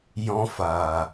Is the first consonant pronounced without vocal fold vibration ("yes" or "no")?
no